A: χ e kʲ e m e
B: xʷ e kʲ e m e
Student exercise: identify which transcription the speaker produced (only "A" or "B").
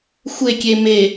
B